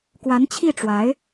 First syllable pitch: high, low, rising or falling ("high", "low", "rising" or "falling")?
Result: rising